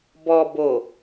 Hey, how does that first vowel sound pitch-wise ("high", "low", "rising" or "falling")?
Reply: low